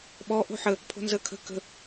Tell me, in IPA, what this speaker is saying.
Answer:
ɓ ɔ ʔ o̤ ħ ə | pʰ o̤ n z ə kʰ ə̤ k ə̤

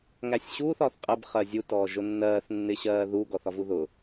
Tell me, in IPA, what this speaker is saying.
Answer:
ŋ æ sʲ ɕ uː θ ɒː θ qʼ ə b χ ɜ zʲ u t ɔː ʒ ʊ nː ɜː θ nː ɪ ɕ ɜː ð u ɡ ɔ θ ɒ v u ð ʊ

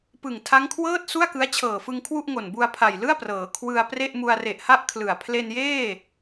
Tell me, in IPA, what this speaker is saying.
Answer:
p ɯ˨˩ ŋ tʰ a˦˥ ŋ kʰ w ɤː˥˩ t̚ s u˥˩ a̯ k ɯ˦˥ a̯ t͡ɕʰ ɤː˨˩ f ɯ˧ ŋ kʰ w u˥˩ ʔ ŋ o˨˩ n b u˧ a̯ pʰ a˨˩ j l ɯ˥˩ a̯ p r ɤː˩˦ kʰ w ɯ˧ a̯ p r e˥˩ ʔ m u˧ a̯ r e˨˩ ʔ h a˦˥ ʔ kʰ l ɯ˨˩ a̯ pʰ l e˧ n j eː˥˩

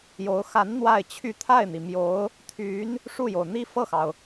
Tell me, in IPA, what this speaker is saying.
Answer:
j o˧˥ ʊ̯ x a˧˥ n n̪ w a˥˧ ɪ̯ t͡ɕʰ y˥˧ t̪ʰ a˥˩ ɪ̯ n̪ i˩ m j o˧˥ ʊ̯ | t̪ʰ y˧˥ n | ʂ u˥˩ j o˩ ʊ̯ n̪ i˥ f ɤ˥˩ x ɑ˩ ʊ̯

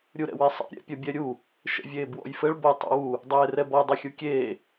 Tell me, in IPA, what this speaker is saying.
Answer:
ɾʲ u ɾ ɛ̰ w e sˤ ɛ̰ ɾʲ ɛ̰ pʲ ɐ bʲ ɛ ɾʲ u | ʃ ɛ̰ vʲ eː b w ɔ̰ j f ɘ ɭ b ɐ tˤ ɛ̰ w u | dˤ eː r ɛ b ɔ dˤ ɘ xʲ u kʲ eː

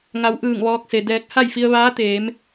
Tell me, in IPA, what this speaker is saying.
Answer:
ŋ a˩˧ w ʔ ɯː˧˩ ŋ ʋ ɔː˧ k̚ s e˩ d ɛː˧ k̚ h a˥˨ j f i˧ ə̯ ʋ aː˧˥ t̪ eː˩˧ m

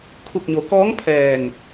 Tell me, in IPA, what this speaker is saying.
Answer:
kʰ u˧˩ k̚ ɲ o˩˧ k ɔː˧˥ ŋ pʰ ɛː˧˩ ŋ

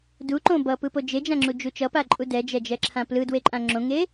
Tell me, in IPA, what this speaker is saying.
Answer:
d u ǃ õ b ʌ p ɯ p o d͡ʒ e d͡ʒ ã ŋ͡ǁ u d͡ʒ u t͡ʃ ʌ p a ǃʼ u d ɛ d͡ʒ ɛ d͡ʒ ɛ ǁʰ ã p l ɯ d w e ǃʼ ã ŋ͡ǁ õ ŋ e

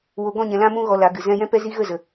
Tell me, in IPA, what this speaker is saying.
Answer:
w o˨ ɡ ɔ̃˦˨ ɲ ɛ̃˨ l ã˧ m ũ˧ ɣ ɔ˧ l a˨˦ ɡ ɨ˨ z ɛ̃˧ j ɛ̃˦ p ɛ˦ z i˦ ɣ ə˦˨ z ə˨

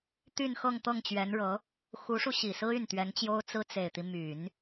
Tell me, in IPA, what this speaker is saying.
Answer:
t̪ y˥˧ n x ɤ˥˧ ŋ t̪ ɤ˥˩ ŋ t͡ɕ ɥ ɛ˧˥ n ɻ ɤ˧˥ | x u˧˥ ʂ u˧ ɕ i˨˩ s ɹ̩˥ y˥˩ n t̪ ɥ ɛ˧˥ n t͡ɕ j o˥ ʊ̯ t͡s ɹ̩˥ t͡s e˨˩ ɪ̯ t̪ i˦ m y˨˩˦ n

